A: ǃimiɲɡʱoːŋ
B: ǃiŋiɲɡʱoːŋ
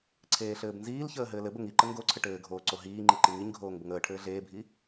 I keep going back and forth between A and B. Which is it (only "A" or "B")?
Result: B